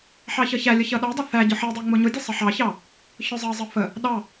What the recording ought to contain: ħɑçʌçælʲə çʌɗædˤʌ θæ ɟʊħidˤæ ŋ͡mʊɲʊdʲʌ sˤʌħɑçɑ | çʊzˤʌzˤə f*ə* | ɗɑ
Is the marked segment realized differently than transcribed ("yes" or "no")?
no